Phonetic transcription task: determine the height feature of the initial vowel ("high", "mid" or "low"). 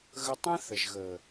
mid